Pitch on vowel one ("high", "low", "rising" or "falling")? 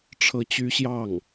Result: high